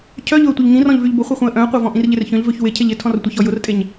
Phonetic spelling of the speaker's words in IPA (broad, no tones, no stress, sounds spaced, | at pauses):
cʰ œ ʎ ʊ ə̯ tʷ i ʎ ŋ ĩ r ɔ̃ ʎ v y ʎ b ʊ χʷ e χʷ œ̃ ə̯ ʔ œ̃ ə̯ qʷ a v ɔ̃ ʔ ĩ r ʎ ɪ r ç œ̃ ʎ v ø ç w ɪ cʰ e ʎ ɪ tʰ ɔ̃ r tʷ ɪ ç ɔ j ʊ r tʼ e ɲ